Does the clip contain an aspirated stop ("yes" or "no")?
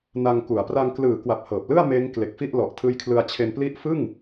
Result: yes